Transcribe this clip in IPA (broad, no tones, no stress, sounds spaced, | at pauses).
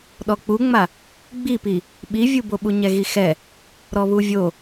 ɗ ɔ k͡p u ŋ͡m a | ɡ͡b i p i | ɓ i vʲ u b o ɓ u ɲ ɛ ɣ i x ɛ | ɾ ɔ β u vʲ o